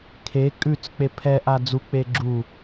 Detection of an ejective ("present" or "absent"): present